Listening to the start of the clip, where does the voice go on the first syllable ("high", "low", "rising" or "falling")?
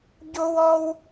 high